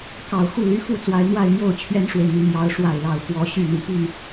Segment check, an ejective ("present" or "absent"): absent